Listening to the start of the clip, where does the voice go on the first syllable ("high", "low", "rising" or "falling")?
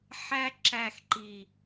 high